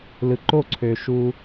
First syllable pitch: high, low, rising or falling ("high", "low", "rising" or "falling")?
low